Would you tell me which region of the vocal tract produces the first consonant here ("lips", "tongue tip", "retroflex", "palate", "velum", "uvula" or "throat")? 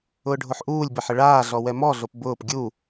retroflex